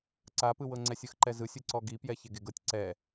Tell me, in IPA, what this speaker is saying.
ǀ a p ɯ w ɤ ŋ͡ǀ ɛ sʲ ɯ x ǃ ɛ z ɯ sʲ ɯ ǀ ɔ ɡ i p j ɛ ç e ɡ e ɡ ɤ tʲ ǀ ɛ

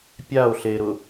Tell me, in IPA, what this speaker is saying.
pʲ a o̯ ɬ e ɾ ʊ

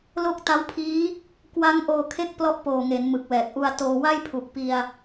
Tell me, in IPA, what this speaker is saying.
l o˥˩ k̚ t a˦˥ w pʰ iː˦˥ | k w a˦˥ ŋ ʔ oː˧ kʰ e˦˥ k̚ p l ɔ˥˩ ʔ p oː˨˩ ŋ e˩˦ n m ɯ˨˩ k̚ w ɛː˨˩ k̚ ʔ u˧ a̯ t oː˧ w a˥˩ j pʰ u˨˩ k̚ p i˧ a̯

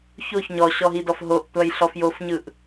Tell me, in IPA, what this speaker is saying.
ç o ç ɲ ɔ ɕ ɔ ɦ i d ɔ f ɦ o ʔ tʷ a j ɬ ɔ f j o f ɲ ɯ ʔ

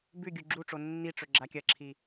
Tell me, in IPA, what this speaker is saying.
b ʉ ɡʲ u ɡ͡ǁ u ʈ͡ʂ o nː i ʈ͡ʂ ɵ ɡ͡ǁ a kʲ ɐ ǁʰ i

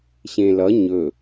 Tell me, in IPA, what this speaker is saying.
ɕ ẽ l ʌ ɲ ɵ

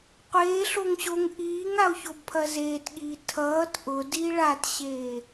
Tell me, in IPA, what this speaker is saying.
qʷ eː ɬ o ŋ ɕ o ŋ ʔ iː ŋ a o̯ ç o b pʰ ɐ z eː t ɠ iː tʰ ʌː t ʔ ʊ d i ɭ a t ɕ eː

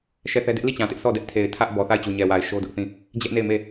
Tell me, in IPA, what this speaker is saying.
ʃ ɛ˦˨ θ ɛ˦ d ɪ˦ ʔ l i˦˨ t͡ɕ ã˨ t ɪ˦ ʔ s ɔ˦˨ d ɛ˦ ʔ tʰ e˨ ɪ̯ tʰ ä˦ ʔ b ɔ˨ θ a˦˨ ɪ̯ t͡ɕ u˨ ɲ ɛ˨ w a˨ ɪ̯ ʃ o˦ d ʊ˦ ʔ θ ĩ˦˨ | d͡ʑ ɛ˦ ʔ n e˦˨ ɪ̯ m e˦˨

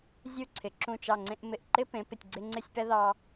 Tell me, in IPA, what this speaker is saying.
zʲ u˥˧ ǀʰ ɪ˩˧ ǁ ũ˧˩ t͡ʃ ɑ˧˩ ŋ͡ǀ ẽ˧ ʔ m ɪ˧˩ ʔ ǃ ɪ˥ p ẽ˩˧ p ɪ˧˩ tʲ ɡ͡ǀ ɪ˧ ŋ͡ǀ ɪ˥˧ sʲ p ɛ˥ ð ɑ˧

